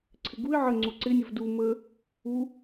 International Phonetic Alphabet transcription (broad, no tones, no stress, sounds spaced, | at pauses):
ǀʰ ɪ ɡ u ɪ̯ ʕ ə ŋ͡ǀ u ǀ ɪ nʲ ə v d u m ə | u